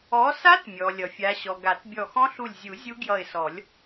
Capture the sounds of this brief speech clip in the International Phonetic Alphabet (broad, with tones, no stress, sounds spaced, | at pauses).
ɔ˨˦ s a˦˥ t mʲ ɔ˩ lʲ ʌ˩ fʲ a˨˦ ɕ ɔ˩ ɡ a˨˩˦ t bʲ ɔ˧˩ x ɔ̃˦˥ ɬ u˧˩ lʲ zʲ u˨˩˦ zʲ u˦˥ ɡ j ʌ˧˩ ɪ̯ s ɔ˨˩˦ lʲ